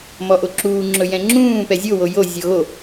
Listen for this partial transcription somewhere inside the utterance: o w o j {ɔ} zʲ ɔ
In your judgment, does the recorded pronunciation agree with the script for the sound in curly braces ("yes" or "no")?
no